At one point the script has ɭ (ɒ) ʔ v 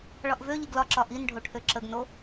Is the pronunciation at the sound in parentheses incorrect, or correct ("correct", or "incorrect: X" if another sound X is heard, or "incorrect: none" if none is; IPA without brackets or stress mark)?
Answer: correct